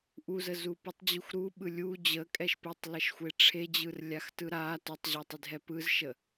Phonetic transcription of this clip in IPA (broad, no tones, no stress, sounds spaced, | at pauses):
ʔ u z ə z u p ʊ tˤ d͡ʑ u x ɾ u ɓ ɯ lʲ u d͡ʑ ə kʼ ɛ ʃ p i tˤ l ə ʃ xʷ e ʈ͡ʂʰ e d͡ʑ ɯ r lʲ a x t ɯ ɾ a t ʊ tˤ ʑ ɛ tˤ i dʱ ɛ p ɯ z ʃ ə